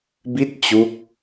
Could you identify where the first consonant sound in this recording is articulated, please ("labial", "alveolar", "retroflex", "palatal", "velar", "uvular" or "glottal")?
labial